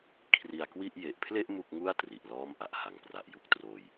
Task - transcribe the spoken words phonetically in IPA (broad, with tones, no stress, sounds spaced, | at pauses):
kʰ r i˧ a̯ k w i˥˩ ʔ j e˨˩ ʔ pʰ l e˥˩ ʔ m u˥˩ k̚ ŋ u˥˩ a̯ t r i˨˩ ʔ l ɔː˥˩ m ʔ a˨˩ ʔ h a˨˩ ŋ p r a˨˩ ʔ j u˦˥ k̚ t r oː˧ j